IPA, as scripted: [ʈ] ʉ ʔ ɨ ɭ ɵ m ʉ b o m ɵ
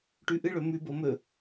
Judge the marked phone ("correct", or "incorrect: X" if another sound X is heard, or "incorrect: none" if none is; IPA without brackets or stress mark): correct